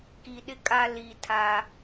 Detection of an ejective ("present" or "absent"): present